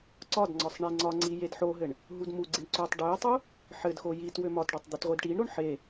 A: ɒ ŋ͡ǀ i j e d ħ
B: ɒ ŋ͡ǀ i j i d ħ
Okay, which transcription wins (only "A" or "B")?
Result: A